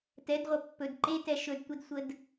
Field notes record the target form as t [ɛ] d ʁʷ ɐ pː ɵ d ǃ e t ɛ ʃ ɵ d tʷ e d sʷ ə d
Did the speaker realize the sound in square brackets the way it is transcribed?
yes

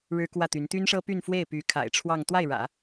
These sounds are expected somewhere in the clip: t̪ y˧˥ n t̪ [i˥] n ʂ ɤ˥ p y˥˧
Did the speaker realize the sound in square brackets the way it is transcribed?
no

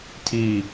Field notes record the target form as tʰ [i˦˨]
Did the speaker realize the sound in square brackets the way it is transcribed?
yes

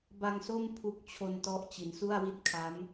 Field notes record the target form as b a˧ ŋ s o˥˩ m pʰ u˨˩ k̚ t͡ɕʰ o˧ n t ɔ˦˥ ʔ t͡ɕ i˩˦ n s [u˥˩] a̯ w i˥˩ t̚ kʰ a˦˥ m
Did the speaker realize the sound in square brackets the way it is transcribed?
yes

